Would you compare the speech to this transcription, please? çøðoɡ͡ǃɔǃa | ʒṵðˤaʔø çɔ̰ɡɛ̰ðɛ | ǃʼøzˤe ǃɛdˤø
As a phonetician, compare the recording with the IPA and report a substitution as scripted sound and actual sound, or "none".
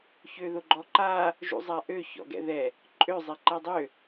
ðˤ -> zˤ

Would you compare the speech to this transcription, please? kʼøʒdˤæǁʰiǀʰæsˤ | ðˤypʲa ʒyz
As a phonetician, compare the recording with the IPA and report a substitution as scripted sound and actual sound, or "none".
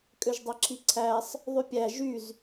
a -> æ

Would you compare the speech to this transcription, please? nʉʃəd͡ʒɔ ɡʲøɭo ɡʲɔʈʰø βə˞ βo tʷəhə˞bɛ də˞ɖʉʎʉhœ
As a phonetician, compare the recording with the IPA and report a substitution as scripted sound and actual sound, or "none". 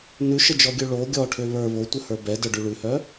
ʎ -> ɭ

